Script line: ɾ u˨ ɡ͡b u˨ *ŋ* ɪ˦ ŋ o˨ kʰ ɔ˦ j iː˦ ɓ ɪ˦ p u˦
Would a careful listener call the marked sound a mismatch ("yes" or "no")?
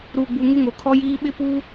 no